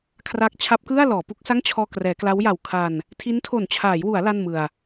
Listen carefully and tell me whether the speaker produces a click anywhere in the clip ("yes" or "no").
no